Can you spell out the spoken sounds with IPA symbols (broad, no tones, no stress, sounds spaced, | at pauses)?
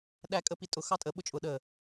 ɗ æ kʼ ə p i tʼ ʊ x ɑ tʼ ə ɓ ʊ t͡ʃʼ ʊ ɗ ə